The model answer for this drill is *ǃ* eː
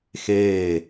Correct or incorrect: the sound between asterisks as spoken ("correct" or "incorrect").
incorrect